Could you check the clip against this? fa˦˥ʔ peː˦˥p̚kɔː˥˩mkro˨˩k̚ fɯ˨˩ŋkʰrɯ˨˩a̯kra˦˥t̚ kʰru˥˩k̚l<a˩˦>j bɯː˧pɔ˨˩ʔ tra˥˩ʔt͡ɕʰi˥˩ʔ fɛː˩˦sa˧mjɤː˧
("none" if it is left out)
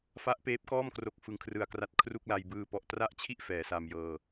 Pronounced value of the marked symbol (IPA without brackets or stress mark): a˧